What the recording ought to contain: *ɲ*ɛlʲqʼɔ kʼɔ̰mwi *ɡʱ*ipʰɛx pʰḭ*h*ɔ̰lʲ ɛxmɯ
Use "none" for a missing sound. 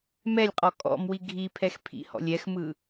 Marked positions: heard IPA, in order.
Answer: m, ɡʱ, h

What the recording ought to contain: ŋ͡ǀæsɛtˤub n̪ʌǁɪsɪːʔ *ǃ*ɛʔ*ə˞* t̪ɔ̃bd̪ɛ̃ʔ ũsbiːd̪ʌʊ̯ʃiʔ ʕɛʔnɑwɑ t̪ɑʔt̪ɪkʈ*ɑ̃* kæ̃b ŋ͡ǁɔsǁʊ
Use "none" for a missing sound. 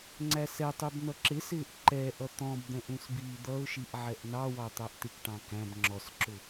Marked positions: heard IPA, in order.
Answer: ǃ, ʌ, ɑ̃

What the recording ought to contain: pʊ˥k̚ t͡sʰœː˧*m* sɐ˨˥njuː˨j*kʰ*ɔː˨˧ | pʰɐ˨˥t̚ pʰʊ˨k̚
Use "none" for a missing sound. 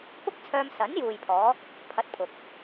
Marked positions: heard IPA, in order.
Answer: m, pʰ

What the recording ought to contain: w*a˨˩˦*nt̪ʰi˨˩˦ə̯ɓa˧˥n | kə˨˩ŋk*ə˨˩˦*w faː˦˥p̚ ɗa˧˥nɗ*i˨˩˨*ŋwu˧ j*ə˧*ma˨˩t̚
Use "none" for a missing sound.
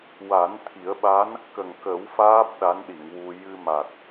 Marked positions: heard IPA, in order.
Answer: a˨˩˦, ə˨˩˦, i˨˩˨, ɨ˧

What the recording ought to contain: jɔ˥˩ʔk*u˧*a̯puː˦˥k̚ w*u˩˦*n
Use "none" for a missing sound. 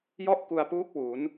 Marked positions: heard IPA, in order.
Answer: u˧, u˩˦

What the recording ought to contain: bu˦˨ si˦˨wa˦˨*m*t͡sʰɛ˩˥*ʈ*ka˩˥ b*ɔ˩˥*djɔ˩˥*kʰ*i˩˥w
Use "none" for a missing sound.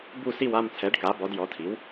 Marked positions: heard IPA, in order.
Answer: m, ɖ, ɔ˩˥, tʰ

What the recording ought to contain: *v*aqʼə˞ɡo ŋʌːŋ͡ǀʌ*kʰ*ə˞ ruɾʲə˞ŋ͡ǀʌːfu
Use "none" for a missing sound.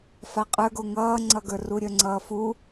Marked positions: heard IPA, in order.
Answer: f, ɡ

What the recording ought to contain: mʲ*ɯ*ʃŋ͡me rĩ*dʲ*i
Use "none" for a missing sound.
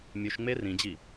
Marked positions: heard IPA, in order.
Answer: u, d͡ʑ

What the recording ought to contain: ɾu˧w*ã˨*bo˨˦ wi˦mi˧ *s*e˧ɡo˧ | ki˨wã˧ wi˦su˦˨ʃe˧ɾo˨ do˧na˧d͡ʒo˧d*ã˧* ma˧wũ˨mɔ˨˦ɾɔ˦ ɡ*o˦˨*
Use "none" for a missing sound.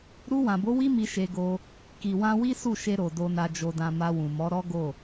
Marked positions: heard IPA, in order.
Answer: ã˨, ʃ, ã˧, o˦˨

